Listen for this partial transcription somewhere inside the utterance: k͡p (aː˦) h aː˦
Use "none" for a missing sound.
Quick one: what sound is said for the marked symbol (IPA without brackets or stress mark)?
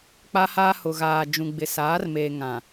a˦